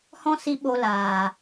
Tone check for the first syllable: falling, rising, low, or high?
high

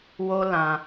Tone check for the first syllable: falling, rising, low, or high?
high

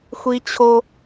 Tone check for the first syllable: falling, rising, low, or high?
high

